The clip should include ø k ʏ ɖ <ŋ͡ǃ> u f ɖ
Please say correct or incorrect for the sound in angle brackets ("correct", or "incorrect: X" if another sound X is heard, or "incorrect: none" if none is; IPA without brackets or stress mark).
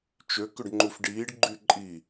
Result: correct